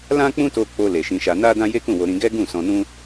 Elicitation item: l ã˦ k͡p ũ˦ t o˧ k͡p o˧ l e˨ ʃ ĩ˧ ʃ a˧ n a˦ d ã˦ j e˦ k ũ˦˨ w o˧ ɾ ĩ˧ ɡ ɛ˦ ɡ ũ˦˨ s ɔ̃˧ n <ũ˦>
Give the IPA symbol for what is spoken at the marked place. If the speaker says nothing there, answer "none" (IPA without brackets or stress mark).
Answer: ũ˦